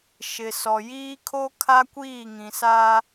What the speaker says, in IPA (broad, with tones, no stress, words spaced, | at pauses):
ʃɪ˨sɔ˨ jiː˦kʰo˦kʰa˦ kʷiː˦˨ŋĩ˨ sa˦